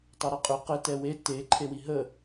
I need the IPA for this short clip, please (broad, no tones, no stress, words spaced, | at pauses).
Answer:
tˤɛɾɛqʼʏ qɘ tɛwe te ǃʰewiɦə